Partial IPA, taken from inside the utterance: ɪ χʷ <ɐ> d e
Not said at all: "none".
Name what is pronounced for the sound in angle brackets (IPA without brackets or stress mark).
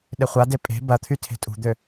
a